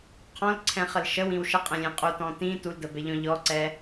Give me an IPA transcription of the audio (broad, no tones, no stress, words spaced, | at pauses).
qʰɔ̃lǀʰɛ̃χəl ʃəwĩw ʃəqʼɛ̃lʲẽ qʼutɔ̃ tĩ tuldəbɛʎɔ̃ ʎɔǀɛ